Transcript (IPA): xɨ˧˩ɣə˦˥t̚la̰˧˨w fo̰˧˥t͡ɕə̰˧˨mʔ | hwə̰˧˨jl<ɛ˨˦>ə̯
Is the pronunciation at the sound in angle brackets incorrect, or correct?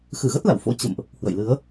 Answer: incorrect